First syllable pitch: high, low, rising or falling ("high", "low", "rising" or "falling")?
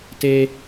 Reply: high